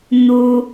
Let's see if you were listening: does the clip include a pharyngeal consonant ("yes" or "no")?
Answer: no